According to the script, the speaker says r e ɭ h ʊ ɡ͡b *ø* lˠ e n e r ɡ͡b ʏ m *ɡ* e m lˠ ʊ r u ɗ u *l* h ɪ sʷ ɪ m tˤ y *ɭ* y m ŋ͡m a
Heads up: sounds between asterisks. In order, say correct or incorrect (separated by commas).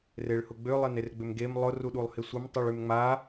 correct, correct, incorrect, correct